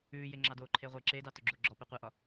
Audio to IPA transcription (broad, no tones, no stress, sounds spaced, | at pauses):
ʉː j e ŋ͡ǁ ɑ d oː ǃʰ e ʁʷ e ǁ e d ɑ t o ɡ͡ǁ o ɡ͡ǁ ɔ p ɛ qʷ ɛ ʔ ɒ